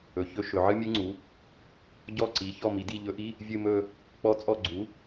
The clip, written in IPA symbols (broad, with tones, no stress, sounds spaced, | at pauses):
ɵ˩˧ ç ɵ˧˥ ʃ ɵ˩˧ ʕ ɨ˥ mʲ ɨ˥ ŋ͡ǀ u˩˥ | ɟ ɔ˦˨ ǀ i˩˧ ç ɔ˦˨ m i˩˧ d i˦˨ ʎ ɵ˧˥ ʔ i˧˥˧ | vʲ ɨ˦˨ m ɵ˦˨ | k͡p ɔ˧˥ t͡sʼ ɔ˦˨ ɡ͡ǀ u˩˥